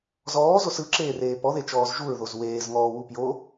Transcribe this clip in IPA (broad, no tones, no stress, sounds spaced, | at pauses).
z ɔː z o s ɯ ǁ eː r eː p ɔ ð e t͡ʃ ɔː z ʒ u ɹ ð o z w eː z ŋ ɔː w u p j o